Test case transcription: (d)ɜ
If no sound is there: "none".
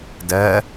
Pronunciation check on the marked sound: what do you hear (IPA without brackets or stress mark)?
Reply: d